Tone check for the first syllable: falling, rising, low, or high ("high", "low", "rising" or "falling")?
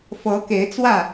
rising